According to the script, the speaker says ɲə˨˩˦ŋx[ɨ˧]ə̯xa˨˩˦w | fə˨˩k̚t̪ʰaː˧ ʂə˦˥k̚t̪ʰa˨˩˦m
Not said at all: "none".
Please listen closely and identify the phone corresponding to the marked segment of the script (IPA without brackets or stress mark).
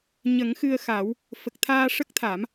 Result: ɨ˧